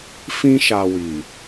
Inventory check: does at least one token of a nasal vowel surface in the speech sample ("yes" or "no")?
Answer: yes